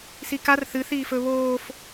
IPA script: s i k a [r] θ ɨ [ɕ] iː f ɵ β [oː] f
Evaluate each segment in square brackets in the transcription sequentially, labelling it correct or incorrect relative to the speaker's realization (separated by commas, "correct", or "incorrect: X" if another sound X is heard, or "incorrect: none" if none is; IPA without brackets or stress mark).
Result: correct, incorrect: θ, correct